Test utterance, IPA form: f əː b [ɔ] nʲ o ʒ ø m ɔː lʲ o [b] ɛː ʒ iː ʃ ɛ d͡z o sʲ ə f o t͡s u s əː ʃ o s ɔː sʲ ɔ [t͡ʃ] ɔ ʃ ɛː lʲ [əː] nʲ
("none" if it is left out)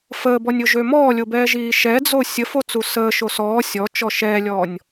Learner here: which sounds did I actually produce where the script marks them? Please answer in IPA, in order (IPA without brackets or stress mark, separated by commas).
ɔ, b, t͡ʃ, ɔː